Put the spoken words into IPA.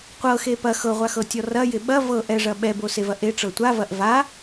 qʷ ɤ x e p ɐ x ɤ ʁʷ a x ɤ tʲ ɔ r ɐ j ɪ ɓ ɐ v ɤ ʔ ɛ ʐ ɐ ɓ ɛ b o s e v ɐ ʔ e ʈ͡ʂ ɤ tʷ a v ɐ ʔ v a

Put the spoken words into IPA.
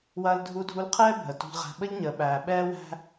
w ɐː˧ l dʱ u˧ dʱ u˧ l qʰ ɛː˦ bʱ ə˨ t ṳ˧ ʎ ʁ æ̤˧ ɓ ə˦ ʎ ɲ əː˨ ɓ æː˨ ɓ ɛː˧ w æ̤˧

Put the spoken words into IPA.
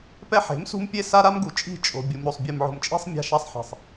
p ɛ˦ ħ e̤˨˦ m s ṳ˦ m pʲ e˦ s a˦ ɾ a˦ m ɡ u˨ t͡ʃʼ i̤˦˨ t͡ʃʼ o̤˨ bʲ u˨ m ɾ o˨ sˤ bʲ ɯ˨ m ʕ o̤˨ m t͡ʃʼ i̤˦ sˤ mʲ a̤˦ ʃ a˦ sˤ ħ e̤˨ sˤ

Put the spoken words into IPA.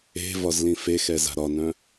e̤ v ɒ z l ĩ f e x ɛ z a̤ ɾ ɒ n œ̃

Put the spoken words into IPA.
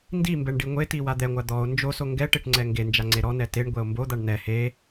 n d i m b ɛ ɳ ɖ i ŋʷ e t i w a d̪ ɛ ŋʷ a d̪ ɔ o̯ n d͡ʒ o s o ŋ ɡ ɛ ʈ e ʈ ŋ͡ǀ ɛ ŋ ɡ e n d͡ʒ a ŋ͡ǀ e ɾ ɔ n ɛ t e ɳ ɡʷ ɛ o̯ m b o d̪ a ɳ n ɛ h e

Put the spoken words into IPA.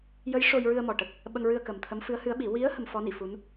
j ə˧˥ j ʂ o˧ j ɹ ɨ˧ ə̯ m ɔ˨˩ ʈ ə˨˩ k̚ | ɓ ə˧ ŋ ɹ ɨ˧ ə̯ k ə˨˩ m t̪ʰ ə˧˥ m f ɨ˧˥ ə̯ h ɨ˧˥ ə̯ ɓ i˨˩˦ w i˧˥ ə̯ h ə˧ m f ɔ˧˥ n i˨˩˨ f u˧˥ n

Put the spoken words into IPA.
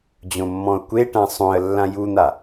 d͡ʑ õ mː ɔ̃ ʊ̯ kʷ e ʈ ã sˤ õ ə̯ lː ã j u n̪ a

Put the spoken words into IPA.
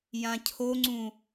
j ã cʰ o ŋ͡ǀ ũ

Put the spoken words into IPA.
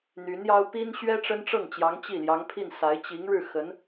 n̪ y˧˥ n j ɑ˥ ʊ̯ p i˥ n ɕ ɥ ɛ˥ ʈ͡ʂ ə˥ n ʈ͡ʂ ɤ˥˩ ŋ t͡ɕ j ɑ˧˥ ŋ t͡ɕ i˥˩ l j ɑ˧˥ ŋ pʰ i˥˩ n s a˧˥ ɪ̯ t͡ɕ i˧˥ ŋ ɻ ɻ̩˥˩ x ə˧˥ n

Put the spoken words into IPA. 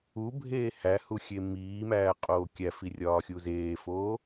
u bʱ eː h æ h u xʲ e m iː m æː qʼ oː kʲ æ f i rʲ ɒː xʲ u z eː f oː

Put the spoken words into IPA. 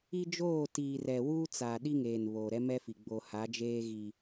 i˦ d͡ʒ oː˦˨ t iː˨ r ɛ˨ w uː˦ t͡s a˨ ɗ i˦ ŋ eː˨ n β oː˨ ɾ ɛ˦ m ɛ˦ f i˨ ɡ͡b o˨ h a˨˦ d͡ʒ eː˦ ɣ i˦

